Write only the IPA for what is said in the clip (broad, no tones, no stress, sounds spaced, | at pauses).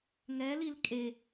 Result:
ŋ ɛ l i l kʼ e